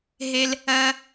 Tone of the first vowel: low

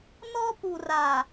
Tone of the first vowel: high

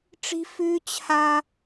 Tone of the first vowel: high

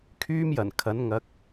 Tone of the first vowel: high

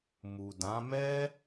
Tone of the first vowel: low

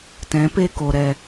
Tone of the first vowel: rising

